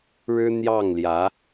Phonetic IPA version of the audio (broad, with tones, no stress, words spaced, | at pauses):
ɻɻ̩˥n̪jɑ˥˩ŋljä˧˥